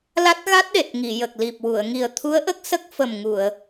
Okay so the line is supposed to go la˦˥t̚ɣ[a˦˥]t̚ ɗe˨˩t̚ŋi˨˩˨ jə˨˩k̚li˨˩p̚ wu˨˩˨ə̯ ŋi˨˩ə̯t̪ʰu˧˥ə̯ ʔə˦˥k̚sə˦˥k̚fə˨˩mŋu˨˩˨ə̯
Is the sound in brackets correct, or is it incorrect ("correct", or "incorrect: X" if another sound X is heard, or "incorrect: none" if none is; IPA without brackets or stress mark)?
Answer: correct